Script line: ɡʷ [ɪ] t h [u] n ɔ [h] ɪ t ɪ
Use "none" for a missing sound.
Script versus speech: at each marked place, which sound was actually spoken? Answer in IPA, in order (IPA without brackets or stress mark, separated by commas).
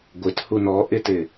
ɪ, u, ʔ